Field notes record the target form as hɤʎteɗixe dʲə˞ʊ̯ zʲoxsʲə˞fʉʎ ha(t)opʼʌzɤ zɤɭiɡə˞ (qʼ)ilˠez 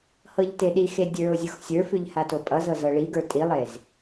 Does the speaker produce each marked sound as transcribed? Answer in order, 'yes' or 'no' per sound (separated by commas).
yes, no